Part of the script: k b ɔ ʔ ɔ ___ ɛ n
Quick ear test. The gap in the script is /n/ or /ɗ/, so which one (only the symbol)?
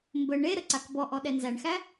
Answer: ɗ